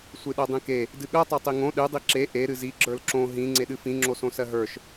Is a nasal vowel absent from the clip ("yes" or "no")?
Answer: no